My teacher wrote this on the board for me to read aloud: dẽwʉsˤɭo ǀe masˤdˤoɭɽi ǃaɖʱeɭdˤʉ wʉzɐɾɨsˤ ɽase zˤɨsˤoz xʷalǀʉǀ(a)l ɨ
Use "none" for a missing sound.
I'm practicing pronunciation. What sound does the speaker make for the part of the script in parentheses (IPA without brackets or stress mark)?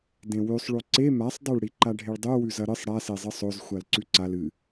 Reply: a